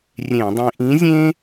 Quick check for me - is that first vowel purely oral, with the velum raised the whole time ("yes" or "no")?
no